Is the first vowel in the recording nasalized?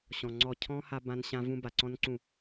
yes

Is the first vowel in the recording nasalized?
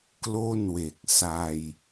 no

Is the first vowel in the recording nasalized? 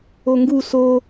no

